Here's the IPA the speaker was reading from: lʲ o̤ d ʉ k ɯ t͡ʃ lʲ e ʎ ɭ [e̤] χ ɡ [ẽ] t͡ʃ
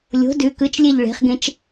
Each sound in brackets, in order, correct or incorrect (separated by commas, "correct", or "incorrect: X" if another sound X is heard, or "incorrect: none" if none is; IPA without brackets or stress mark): correct, correct